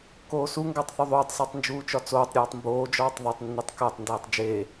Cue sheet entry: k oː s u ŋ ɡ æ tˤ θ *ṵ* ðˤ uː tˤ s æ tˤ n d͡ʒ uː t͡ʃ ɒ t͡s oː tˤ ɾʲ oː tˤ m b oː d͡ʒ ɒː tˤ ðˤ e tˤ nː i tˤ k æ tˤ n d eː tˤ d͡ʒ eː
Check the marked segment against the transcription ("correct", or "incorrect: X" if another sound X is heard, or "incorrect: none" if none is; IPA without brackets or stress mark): incorrect: u